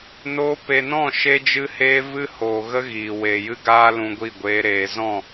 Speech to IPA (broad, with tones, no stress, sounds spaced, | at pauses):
n oː˦ p e˨ n ɔ̃˦˨ ʃ e˦ d͡ʒ ɨ˦ h eː˦ v ɨ˦ h oː˨ ɣ ə˦ ɣ iː˨ w eː˨ j ɨ˦ ɡ aː˦ l ũ˧ ɡʷ i˦˨ ɡʷ eː˦ ɾ eː˧ z ɔ̃˦˨